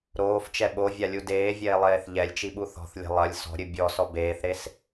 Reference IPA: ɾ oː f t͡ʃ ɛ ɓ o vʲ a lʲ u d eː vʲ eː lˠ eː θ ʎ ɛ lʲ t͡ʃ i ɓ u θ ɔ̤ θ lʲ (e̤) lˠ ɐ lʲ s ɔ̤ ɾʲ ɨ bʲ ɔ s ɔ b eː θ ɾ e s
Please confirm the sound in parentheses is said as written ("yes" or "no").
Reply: yes